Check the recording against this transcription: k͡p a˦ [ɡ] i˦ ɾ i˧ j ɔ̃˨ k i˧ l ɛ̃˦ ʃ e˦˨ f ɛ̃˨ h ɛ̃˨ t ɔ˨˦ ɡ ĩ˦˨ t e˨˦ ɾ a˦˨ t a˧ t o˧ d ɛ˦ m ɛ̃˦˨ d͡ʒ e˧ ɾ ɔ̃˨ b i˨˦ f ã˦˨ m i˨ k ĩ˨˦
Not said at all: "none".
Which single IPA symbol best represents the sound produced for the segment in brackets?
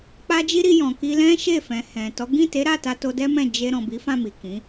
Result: d͡ʒ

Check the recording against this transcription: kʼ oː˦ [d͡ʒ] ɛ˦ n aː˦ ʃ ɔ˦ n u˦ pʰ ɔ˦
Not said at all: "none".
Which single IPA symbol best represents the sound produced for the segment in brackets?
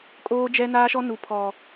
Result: d͡ʒ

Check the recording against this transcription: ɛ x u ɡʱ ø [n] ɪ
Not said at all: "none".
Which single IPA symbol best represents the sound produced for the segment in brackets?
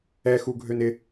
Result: n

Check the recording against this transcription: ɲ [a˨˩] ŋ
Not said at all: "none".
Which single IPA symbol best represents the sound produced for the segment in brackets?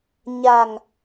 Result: a˨˩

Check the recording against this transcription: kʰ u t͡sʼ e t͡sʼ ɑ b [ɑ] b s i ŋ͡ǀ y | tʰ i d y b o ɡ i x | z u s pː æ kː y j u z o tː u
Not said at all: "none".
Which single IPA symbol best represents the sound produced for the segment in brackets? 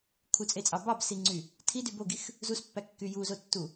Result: ɑ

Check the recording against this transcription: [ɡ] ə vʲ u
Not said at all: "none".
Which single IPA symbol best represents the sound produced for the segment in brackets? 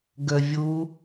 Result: ɡ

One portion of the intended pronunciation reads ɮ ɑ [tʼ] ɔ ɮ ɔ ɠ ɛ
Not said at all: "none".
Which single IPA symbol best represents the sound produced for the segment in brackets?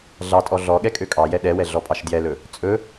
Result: tʼ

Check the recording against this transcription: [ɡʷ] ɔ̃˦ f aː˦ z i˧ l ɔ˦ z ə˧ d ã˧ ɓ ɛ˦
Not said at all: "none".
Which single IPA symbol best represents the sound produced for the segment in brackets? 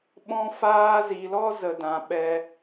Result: ɓ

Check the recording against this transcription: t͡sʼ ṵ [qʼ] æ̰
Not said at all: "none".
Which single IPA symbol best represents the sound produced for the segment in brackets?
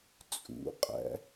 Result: qʼ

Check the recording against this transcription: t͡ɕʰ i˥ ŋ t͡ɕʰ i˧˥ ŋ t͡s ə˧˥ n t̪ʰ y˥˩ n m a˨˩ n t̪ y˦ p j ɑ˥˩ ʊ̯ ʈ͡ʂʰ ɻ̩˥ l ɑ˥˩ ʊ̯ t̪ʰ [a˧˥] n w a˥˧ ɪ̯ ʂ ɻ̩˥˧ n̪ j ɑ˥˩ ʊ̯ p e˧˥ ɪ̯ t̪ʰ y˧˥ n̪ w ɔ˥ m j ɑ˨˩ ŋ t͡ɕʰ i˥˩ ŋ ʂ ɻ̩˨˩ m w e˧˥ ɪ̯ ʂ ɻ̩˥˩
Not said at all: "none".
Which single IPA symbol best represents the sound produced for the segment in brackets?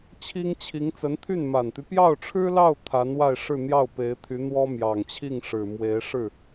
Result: a˧˥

